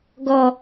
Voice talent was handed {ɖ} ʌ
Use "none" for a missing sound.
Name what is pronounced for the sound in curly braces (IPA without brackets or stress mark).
ɡ